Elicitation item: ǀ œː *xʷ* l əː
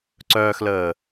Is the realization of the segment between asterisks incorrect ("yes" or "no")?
yes